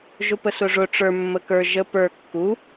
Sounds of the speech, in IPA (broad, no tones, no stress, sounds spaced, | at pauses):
ʒ ʊ p ə s ʊ ʐ ʊ ʈ͡ʂ ə˞ mː ə k ə˞ ʒ ə p ə˞ kː u